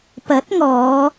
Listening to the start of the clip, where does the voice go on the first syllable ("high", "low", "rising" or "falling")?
rising